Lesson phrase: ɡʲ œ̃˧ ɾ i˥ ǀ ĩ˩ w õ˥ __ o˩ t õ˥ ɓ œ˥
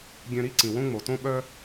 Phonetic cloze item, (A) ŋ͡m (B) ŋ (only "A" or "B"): A